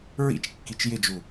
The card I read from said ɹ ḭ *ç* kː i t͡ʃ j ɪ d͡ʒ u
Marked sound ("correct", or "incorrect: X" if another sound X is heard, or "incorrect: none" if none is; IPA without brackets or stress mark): incorrect: t͡ʃ